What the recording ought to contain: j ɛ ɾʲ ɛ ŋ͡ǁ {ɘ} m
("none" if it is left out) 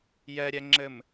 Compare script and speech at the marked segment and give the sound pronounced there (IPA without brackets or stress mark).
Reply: ɘ